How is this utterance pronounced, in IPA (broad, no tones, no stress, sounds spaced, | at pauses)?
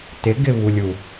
t ɪ ɡ ɪ β u lʲ u